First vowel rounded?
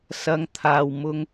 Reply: no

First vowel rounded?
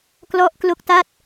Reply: yes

